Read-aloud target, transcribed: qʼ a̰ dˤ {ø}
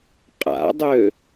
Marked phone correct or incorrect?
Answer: correct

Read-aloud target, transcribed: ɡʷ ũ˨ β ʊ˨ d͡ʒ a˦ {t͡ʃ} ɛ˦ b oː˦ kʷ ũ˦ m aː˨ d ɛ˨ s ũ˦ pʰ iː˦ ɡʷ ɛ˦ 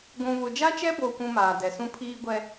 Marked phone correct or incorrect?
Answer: correct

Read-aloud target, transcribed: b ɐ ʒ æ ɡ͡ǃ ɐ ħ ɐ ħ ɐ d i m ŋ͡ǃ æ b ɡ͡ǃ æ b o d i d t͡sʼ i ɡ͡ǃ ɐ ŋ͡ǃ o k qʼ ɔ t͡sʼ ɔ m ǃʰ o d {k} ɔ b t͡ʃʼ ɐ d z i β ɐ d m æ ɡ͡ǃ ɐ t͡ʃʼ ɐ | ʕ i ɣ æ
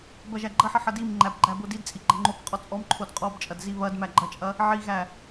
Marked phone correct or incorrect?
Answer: incorrect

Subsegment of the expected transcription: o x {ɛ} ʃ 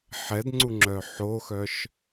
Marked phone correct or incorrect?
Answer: incorrect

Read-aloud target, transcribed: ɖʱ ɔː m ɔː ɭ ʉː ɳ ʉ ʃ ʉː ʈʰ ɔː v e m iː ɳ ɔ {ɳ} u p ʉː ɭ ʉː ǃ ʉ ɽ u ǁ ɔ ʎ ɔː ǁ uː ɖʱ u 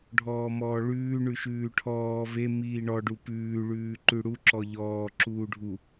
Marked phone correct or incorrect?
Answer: incorrect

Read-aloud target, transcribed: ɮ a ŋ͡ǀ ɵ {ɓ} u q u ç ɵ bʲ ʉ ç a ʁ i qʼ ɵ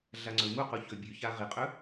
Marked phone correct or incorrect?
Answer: incorrect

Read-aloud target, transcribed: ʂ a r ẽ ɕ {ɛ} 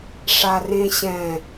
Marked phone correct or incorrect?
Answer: incorrect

